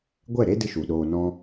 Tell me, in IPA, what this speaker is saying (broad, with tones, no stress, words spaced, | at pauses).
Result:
ɡʷɛ˦˨ɾe˦ dɨ˦ʃu˨ɗoː˧ nɔ̃˧